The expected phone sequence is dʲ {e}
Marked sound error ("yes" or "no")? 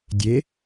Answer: no